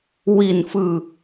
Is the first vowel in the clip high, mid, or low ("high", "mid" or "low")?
high